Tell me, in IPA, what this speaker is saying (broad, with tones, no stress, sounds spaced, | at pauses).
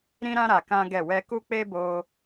ɾ ĩ˦ ɾ ã˦ ɾ a˧ k ã˦ ɡ ɛ˦˨ w ɛ˧ k u˦ k͡p e˦ b o˧